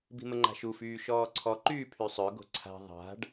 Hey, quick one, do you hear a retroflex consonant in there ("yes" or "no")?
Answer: yes